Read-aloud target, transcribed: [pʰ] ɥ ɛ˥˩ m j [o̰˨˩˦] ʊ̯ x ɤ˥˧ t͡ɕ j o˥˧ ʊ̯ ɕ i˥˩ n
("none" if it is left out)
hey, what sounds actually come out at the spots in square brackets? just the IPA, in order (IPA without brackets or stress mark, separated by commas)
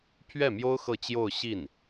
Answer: pʰ, o˥